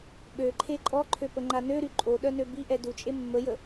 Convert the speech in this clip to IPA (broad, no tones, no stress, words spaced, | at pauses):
ɓøǃʰe ǃʼɔǃʰøpəŋ͡ǃa nøɾy ǃʼoɗœnø biʔɛ dut͡ʃʼe mːəjə